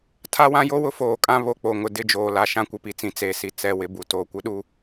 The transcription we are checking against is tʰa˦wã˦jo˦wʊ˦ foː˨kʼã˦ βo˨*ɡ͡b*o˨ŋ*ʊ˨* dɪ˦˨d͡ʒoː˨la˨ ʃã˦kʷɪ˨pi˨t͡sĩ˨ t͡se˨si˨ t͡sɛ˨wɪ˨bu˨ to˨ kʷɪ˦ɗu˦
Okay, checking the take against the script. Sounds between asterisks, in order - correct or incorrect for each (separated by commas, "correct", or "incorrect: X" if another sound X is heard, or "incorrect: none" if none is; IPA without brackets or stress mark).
incorrect: k͡p, correct